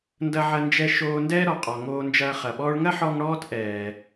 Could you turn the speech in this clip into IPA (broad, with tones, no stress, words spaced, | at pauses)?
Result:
ndɐ˧ʕɐ˧nd͡ʒɛ˧ ʃoː˧ndɛː˥ ɾɔ˩qʼɔ˩ ŋoː˧nd͡ʒɐː˧ χɐ˩ɓɔː˧ɭŋɐ˥ħɔ˧ŋ ɽɔː˥tʔɛː˩